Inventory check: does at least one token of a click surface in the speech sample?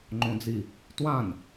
yes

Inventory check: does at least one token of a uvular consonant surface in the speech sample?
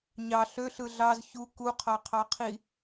yes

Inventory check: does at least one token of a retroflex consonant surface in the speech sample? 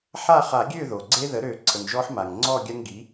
no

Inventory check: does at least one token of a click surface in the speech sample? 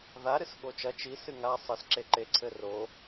yes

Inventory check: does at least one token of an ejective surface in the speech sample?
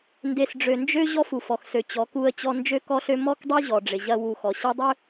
no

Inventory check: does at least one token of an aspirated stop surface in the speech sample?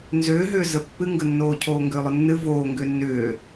yes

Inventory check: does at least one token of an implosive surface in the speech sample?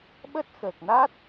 yes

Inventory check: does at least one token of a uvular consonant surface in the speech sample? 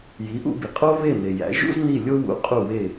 yes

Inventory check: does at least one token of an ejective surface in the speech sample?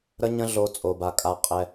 yes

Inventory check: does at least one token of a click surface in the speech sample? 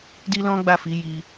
no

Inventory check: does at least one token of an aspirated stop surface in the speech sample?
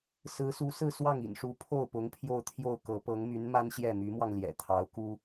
yes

